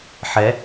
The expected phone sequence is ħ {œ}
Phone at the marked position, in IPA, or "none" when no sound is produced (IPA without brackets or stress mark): ɛ